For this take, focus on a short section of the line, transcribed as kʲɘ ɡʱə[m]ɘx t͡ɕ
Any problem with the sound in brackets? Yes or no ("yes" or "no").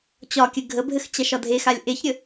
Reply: yes